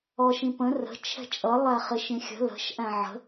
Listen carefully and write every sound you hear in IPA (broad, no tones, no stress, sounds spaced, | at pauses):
ɔ ʃ ĩ p ə̃ r ə̤ t͡ʃʰ ɛ̤ t͡ʃʼ ʌ lˠ æ χ ɪ ʃ ĩ xʲ ə̤ l ə̤ ʃ ʔ æ̃ ʕ ə̤